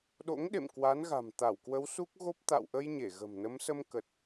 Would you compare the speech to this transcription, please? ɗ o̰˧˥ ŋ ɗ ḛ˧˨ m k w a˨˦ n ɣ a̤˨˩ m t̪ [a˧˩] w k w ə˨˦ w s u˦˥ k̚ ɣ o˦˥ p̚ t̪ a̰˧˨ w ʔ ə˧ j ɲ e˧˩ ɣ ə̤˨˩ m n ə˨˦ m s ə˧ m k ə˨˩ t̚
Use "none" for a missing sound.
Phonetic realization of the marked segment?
a˧˩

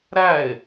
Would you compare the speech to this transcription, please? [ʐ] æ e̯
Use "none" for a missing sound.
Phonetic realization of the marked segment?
ɾ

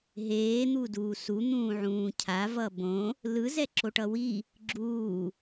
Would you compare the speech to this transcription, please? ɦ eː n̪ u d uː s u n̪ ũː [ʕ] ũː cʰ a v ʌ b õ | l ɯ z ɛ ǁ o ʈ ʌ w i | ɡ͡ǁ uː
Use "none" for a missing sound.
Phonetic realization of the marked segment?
ʕ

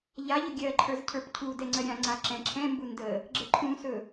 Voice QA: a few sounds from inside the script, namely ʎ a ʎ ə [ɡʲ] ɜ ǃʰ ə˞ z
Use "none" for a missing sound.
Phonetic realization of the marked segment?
ɡʲ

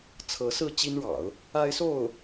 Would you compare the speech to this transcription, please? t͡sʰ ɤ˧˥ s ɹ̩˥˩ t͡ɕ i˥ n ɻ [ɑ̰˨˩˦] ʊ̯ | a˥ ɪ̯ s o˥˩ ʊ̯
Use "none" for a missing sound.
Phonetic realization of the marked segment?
ɑ̰˨˩˦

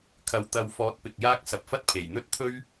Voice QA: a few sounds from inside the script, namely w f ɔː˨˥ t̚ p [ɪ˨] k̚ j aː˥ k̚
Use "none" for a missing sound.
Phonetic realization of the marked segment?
ɪ˨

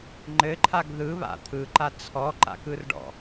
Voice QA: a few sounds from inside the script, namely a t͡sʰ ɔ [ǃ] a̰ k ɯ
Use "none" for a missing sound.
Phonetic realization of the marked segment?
ǃ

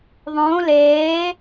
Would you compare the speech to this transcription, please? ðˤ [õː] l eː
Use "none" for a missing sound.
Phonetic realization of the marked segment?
õː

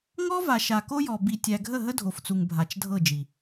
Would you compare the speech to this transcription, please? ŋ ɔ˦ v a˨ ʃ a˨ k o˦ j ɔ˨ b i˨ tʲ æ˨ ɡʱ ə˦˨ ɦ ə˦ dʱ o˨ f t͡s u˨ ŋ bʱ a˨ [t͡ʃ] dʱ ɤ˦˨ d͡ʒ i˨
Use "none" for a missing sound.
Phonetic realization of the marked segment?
t͡ʃ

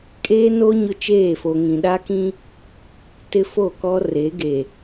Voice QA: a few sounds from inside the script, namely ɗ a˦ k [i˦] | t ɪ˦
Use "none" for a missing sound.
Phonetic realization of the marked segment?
ĩ˦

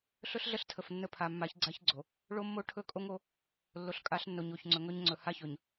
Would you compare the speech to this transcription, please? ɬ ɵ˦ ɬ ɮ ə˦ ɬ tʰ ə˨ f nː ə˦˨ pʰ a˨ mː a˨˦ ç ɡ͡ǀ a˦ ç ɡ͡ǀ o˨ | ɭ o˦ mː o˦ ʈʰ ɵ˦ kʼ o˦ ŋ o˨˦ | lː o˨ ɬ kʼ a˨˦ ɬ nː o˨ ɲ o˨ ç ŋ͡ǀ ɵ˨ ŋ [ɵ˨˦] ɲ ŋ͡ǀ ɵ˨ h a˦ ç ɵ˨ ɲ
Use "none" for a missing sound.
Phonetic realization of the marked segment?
ɵ˦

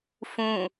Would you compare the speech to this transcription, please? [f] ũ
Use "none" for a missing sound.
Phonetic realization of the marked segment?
f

